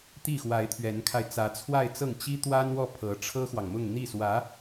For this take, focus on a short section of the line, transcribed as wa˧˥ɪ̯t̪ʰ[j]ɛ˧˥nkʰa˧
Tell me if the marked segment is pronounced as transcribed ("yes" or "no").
no